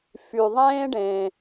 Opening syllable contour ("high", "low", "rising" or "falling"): low